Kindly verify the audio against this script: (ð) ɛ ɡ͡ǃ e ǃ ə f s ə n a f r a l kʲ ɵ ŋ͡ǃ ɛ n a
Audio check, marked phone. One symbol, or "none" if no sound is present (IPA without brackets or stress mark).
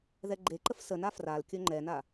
ð